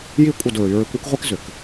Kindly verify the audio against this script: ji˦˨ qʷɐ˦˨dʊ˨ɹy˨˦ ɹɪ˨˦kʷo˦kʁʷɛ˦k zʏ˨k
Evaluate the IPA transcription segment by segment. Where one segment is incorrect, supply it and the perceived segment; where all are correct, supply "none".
qʷ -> kʷʼ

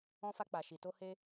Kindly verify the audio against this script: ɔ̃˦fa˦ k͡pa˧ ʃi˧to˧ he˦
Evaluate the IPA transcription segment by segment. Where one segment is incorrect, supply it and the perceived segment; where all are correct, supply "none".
o˧ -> o˦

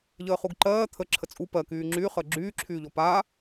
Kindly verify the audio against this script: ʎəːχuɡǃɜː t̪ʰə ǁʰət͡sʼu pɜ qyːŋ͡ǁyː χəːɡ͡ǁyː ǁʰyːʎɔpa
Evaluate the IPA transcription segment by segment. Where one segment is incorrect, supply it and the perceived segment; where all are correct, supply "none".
q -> k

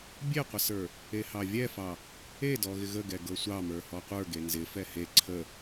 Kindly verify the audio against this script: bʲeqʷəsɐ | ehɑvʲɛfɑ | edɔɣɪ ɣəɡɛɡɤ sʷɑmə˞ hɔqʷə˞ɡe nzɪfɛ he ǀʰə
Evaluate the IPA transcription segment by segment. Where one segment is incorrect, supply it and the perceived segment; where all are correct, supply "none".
ɐ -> ə˞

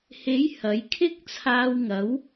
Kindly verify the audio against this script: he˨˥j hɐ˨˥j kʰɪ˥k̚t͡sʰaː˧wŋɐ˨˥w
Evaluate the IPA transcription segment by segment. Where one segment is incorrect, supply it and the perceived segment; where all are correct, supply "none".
none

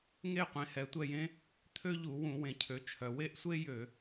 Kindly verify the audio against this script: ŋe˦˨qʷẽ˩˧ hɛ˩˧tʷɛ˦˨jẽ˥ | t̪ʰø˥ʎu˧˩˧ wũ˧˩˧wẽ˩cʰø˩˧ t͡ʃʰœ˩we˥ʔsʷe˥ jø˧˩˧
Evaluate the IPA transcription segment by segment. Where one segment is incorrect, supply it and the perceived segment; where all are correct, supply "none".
none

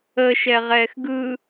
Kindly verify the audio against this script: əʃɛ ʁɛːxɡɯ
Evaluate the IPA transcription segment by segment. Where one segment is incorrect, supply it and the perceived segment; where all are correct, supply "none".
none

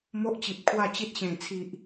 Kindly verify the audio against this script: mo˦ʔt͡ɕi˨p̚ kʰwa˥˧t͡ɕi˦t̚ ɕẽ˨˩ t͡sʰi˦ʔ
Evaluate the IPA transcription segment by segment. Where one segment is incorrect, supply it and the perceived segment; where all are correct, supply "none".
none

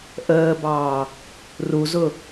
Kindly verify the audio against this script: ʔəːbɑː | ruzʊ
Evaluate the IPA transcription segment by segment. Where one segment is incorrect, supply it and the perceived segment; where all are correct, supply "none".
none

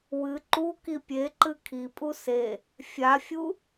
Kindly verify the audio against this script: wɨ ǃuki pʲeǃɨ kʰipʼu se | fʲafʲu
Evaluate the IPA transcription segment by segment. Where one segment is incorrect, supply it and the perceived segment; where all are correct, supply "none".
none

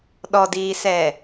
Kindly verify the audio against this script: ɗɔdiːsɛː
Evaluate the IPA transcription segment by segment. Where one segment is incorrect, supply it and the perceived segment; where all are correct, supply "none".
none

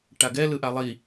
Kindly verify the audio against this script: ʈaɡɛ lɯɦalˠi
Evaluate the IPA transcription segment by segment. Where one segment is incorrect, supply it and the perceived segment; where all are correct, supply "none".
ɦ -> ʔ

